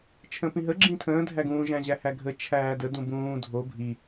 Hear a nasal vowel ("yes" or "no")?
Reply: yes